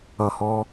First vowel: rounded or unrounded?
unrounded